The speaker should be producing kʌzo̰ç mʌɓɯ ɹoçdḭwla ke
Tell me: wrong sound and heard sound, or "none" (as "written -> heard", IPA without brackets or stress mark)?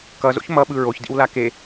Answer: none